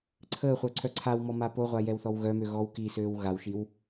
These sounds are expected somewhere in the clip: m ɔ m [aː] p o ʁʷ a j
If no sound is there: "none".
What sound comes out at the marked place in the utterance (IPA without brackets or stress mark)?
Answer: a